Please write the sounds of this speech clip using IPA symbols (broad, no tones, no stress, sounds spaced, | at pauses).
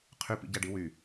qʰ y p ḭ ɟ æ ɖ i w y